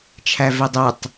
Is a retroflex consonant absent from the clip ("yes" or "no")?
yes